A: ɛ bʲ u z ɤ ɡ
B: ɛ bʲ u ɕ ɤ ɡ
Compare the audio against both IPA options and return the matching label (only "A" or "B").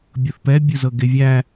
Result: A